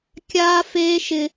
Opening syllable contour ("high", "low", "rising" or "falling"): high